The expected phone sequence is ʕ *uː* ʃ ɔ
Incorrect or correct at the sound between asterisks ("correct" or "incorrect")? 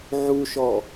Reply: incorrect